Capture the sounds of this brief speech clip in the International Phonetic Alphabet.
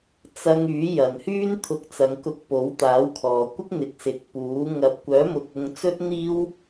t͡sɐ˧ŋ yː˨˥jɐ˨nhyː˥n t̪ʰʊ˧k̚t͡sɐ˨˧ŋkʊ˧k̚ po˨˥wt̪aː˨˥wkʰɔː˨ kʷɪ˥k̚n̪ɪ˨k̚sɪ˨k̚ puː˨˥ ŋɐ˨˥p̚kʷœː˨˥mʊ˨k̚ ʊ˧ŋ t͡sɵ˥t̚n̪iː˥w

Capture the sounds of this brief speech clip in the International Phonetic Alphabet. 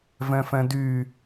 vɛ̃fɛ̃dy

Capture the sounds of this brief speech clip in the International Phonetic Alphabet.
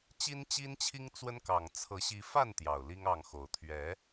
t͡ɕi˦nt͡ɕi˦nt͡ɕʰi˦ŋ t͡swə˦nkɑ˨˩ŋ t͡sʰɤ˨˦ ɕi˨˦fa˥˨n t̪jɑ˨˩ʊ̯li˦ŋɑ˥˨ŋxo˨˦ʊ̯ t̪ʰɥɛ˨˦

